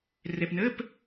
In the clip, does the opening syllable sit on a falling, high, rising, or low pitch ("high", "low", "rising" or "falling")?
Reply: low